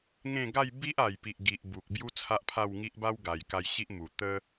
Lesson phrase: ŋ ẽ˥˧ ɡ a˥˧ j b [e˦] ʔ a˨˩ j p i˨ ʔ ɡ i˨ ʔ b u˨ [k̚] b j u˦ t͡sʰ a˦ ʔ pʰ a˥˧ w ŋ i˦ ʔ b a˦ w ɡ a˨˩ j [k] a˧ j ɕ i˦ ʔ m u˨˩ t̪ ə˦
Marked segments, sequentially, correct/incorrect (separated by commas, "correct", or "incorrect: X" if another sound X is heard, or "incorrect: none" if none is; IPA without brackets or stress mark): incorrect: i˦, correct, correct